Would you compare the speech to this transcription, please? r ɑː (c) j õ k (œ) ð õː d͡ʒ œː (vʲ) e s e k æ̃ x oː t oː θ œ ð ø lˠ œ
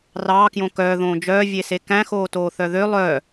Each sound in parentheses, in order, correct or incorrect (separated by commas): incorrect, incorrect, correct